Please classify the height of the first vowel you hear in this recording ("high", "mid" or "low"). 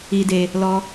high